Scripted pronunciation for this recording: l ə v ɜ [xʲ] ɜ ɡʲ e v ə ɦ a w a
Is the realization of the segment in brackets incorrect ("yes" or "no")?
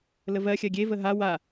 no